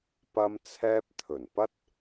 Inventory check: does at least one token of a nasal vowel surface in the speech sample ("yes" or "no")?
no